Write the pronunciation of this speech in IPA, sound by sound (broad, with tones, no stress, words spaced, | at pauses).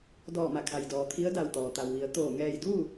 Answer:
dɔː˧˩ma˧˩kʰa˩jdɔː˩ t̪ʰi˧˥ə̯da˧˩wt̪ɔː˩ t̪a˩wʋi˩˧ə̯ t̪oː˧˩ ŋɛː˧˩jduː˥˨